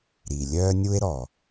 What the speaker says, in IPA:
ɾ i˩ lʲ œː˦ nʲ u˦ e̯ ɾ ɔ˩

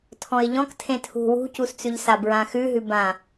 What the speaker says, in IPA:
tʰ ɔ̃ ɪ̯ ʎ ɔ̃ k tʰ ẽ tʰ ṳ w ṳ c u s t͡s ʉ ʎ s a b ɹ ã x ʉ ɦ ʉ b ã

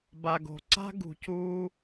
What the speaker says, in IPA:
b a˨ ɡ o̤˨ ǀ a̤˥ ɡ ṳ˨ c uː˦

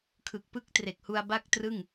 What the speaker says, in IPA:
kʰ ɯ˨˩ k̚ p ɯ˦˥ k̚ t r e˨˩ k̚ h u˧ a̯ b a˥˩ k̚ t r ɯ˥˩ ŋ

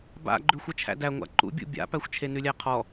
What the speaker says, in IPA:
b a̰ ɡ͡ǃ ʉ xʷ ʌ t͡ʃʰ æ̰ d æ ŋʷ a̰ ǃ ṵ bʲ ṵ bʲ a̰ p æ xʷ t͡ʃʰ e n ʉ lʲ æ qʰ ɔ

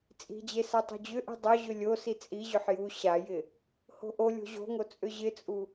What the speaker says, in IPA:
t͡sʼ i̤ d͡ʑ e s a tˤ o̤ d͡ʑ ʏ ʔ i̤ dˤ o ʑ ʏ lʲ o s i t͡sʼ i ʑ ʏ ħ j u ɕ a j ɪ | h o̤ ʔ o lʲ o̤ ʑ o̤ ŋ o t͡sʼ ʏ ʑ ɪ t͡sʼ u

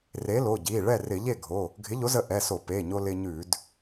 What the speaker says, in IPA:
r e˨˥ l o˩˧˩ ɟ i˩˧˩ ɭ ɛ˥˩ r ɪ˧˩˧ ʎ e˥˩ ɡʱ o˩˧˩ | ɡʱ ɪ˨˥ ʎ o˨˥ z ə˧ ʔ ɛ˩˧˩ s o˧˩˧ p e˩˧˩ ɲ o˧ l ɪ˧ ɲ ʉ˧˩˧ d

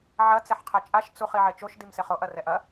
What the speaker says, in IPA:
ʕ ɐ t͡s ɛ ħ qʰ ɛ t͡ʃʼ a ʃ t͡s u χ i ʕ e t͡ʃ o ʃ d i m s e χ o ʔ ɐ r ɛ ʔ ɐ

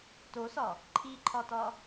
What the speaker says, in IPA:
t o s ɒ | ǃʰ i ǃʰ ɒ t ɒ

